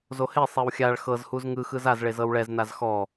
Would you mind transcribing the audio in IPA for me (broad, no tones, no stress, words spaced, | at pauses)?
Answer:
zohesˤew xʲaɭ xɤzhuz ŋɯxɯz azɭe zɤwɭɛznaz xɔ